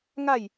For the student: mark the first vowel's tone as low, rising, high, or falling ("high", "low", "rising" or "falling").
falling